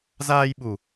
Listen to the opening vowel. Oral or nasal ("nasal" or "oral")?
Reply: oral